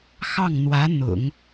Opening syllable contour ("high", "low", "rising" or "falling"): falling